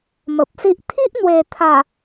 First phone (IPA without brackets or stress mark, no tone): m